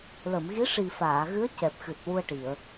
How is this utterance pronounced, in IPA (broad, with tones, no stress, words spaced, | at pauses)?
lə˨˩˨mɣi˧˥ʂi˨˩ faː˨˩˨ɣɨ˧˥ə̯ cɛ˨˩p̚xɨ˨˩t̚ wu˧ə̯ʈi˨˩˨ə̯